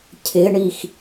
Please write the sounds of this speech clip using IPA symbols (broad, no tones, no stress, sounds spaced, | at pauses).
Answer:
cʰ ɪ ɳ i x